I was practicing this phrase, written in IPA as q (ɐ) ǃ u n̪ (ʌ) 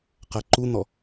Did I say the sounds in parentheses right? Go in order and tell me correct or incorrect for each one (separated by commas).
correct, incorrect